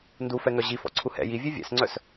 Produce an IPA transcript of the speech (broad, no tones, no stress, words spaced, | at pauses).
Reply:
ndufɛŋœ ʑifɔ̰ǀʰu hɛ̰ jivʲe vʲɛ̰sŋ͡ǀœs